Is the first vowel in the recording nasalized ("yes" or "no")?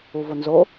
no